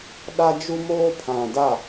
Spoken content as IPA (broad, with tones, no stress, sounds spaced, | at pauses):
ɗ a˦ d͡ʒ u˦ m oː˦ pʰ ã˨ d a˦˨